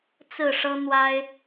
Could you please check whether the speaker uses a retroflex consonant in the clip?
yes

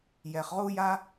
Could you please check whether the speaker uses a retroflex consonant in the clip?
no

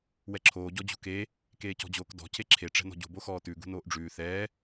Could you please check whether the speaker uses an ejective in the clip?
no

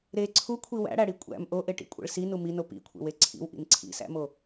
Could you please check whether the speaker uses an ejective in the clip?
yes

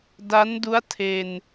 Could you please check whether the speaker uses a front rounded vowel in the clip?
no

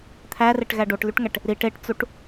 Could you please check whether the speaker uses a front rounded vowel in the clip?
yes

